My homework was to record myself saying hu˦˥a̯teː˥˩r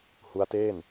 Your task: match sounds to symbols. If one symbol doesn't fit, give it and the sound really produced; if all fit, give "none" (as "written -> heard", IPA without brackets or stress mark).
r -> n